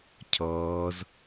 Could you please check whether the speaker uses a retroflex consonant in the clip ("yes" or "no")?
no